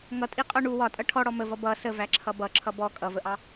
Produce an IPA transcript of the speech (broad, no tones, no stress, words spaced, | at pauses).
ŋʌtʼiqʼɒ ɳu wɒtʼʌ ʈʰɔɽɔ məvʌ bʌ səvæǁʰʌ bʌǁʰʌ bɔ kʼʌvəʔɑ